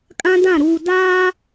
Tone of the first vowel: high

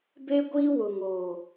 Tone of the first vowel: high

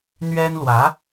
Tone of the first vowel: high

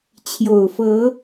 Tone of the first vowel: low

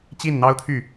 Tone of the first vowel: falling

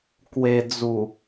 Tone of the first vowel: low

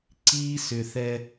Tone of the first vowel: high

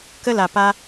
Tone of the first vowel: high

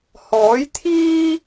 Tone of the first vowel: rising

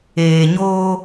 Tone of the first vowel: low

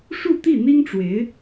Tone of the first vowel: falling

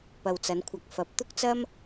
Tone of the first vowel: low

